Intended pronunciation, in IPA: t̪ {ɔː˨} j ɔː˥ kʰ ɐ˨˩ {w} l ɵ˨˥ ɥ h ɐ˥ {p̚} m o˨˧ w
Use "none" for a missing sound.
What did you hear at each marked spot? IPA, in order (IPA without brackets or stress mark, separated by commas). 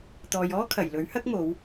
ɔː˨, j, k̚